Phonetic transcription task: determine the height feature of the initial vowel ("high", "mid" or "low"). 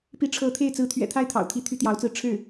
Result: high